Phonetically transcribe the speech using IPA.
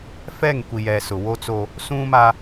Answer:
f ɛ˦˨ ŋ kʷ i˨ j ɛ˨ s ʊ˨ w o˦ t͡s o˦ | s ũ˦ m a˦

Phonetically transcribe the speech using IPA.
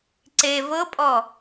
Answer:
ǀ e v ɤ pʼ ɔ

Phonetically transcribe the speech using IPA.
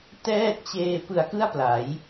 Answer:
t ɛː˥˩ t̚ t͡ɕ eː˧ p ɯ˧ a̯ k ɯ˥˩ a̯ p l a˩˦ j

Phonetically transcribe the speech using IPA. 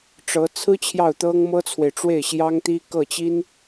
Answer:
ʈ͡ʂ ɤ˧˥ t͡sʰ ɹ̩˥ t͡ɕʰ j ɑ˥˩ ʊ̯ t̪ ɤ˥ ŋ m ɤ˥ t͡sʰ w e˨ ɪ̯ ʈ͡ʂ w e˥˩ ɪ̯ ɕ j ɑ˥ ŋ t̪ i˥ k ɤ˥˩ t͡ɕ i˥ n

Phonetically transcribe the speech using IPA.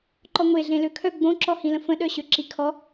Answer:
ǃ ɔ ŋʷ e ɮ ẽ l ø kʰ œ ɡ͡b õ ǁ ɔ h ĩ l ə̃ f ə̃ ɗ œ ɕ ø ǁ i kʰ ɔ

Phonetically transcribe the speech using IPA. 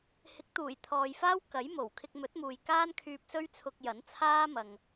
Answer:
h ɪ˨˥ k̚ t̪ uː˨˩ j t̪ʰ ɔː˨ j f aː˥ w k ɐ˨˥ j m o˨˩ w kʰ ɪ˧ k̚ m ɵ˨˥ t̚ m uː˨ j k aː˥ n kʰ yː˧ p̚ s ɵ˥ ɥ t͡sʰ ʊ˧ k̚ j ɐ˨˥ n t͡sʰ aː˥ m ɐ˨ ŋ

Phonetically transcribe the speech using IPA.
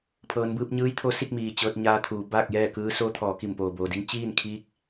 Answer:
pʰ ɤː˩˧ n b ɯː˧ p̚ ɲ ɯː˧˥ j t̪ʰ o˧˥ s i˥˨ k̚ m iː˩ t͡ɕ ɤː˧ t̚ ɲ aː˧ t̪ʰ uː˩˧ b aː˥˨ k̚ j ɛː˥˨ k ɯː˧˥ s oː˧˥ t̪ʰ ɔː˩˧ k i˧˩ m p oː˩ b oː˩ d i˧˥ ŋ t͡ɕ iː˥˨ n kʰ iː˧˥ k̚

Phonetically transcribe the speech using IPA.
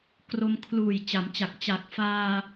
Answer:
k r o˧ m kʰ l uː˨˩ j t͡ɕ a˩˦ m t͡ɕ a˨˩ k̚ t͡ɕ a˨˩ k̚ f aː˧

